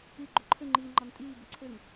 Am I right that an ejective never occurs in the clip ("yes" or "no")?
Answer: no